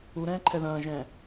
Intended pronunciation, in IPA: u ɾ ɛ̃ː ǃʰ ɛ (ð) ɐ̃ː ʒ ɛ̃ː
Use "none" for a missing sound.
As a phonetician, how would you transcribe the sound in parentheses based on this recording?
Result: ð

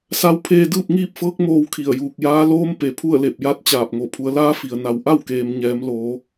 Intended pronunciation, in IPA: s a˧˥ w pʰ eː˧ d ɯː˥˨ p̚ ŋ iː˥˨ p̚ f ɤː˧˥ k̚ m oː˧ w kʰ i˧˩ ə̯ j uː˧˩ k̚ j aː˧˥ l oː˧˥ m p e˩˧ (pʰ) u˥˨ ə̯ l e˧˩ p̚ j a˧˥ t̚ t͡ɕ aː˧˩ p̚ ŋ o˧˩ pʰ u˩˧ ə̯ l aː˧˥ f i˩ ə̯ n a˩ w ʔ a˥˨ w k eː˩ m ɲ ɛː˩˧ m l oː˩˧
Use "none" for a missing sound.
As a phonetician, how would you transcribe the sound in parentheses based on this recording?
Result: pʰ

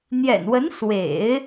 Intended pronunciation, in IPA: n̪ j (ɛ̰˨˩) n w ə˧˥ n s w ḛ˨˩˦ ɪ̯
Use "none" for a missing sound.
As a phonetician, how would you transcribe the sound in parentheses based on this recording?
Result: ɛ̰˨˩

